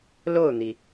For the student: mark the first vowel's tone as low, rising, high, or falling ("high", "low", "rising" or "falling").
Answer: falling